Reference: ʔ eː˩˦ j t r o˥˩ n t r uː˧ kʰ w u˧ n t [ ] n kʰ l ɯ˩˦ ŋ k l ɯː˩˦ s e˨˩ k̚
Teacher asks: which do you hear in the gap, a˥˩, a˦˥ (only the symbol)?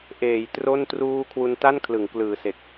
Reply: a˥˩